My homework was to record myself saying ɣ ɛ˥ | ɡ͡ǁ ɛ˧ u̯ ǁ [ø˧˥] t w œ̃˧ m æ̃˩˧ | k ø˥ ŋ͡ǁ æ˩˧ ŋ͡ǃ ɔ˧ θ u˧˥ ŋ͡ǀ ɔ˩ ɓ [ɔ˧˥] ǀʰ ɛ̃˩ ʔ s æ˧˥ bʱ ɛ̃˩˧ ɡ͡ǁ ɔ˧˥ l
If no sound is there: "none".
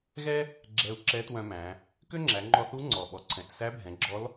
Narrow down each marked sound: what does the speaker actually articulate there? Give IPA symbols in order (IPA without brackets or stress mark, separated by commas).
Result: ɛ˧˥, ɔ˩